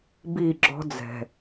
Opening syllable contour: falling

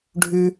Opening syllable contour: high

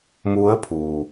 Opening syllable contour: rising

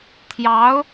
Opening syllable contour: rising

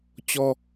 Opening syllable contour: high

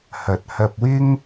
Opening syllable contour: low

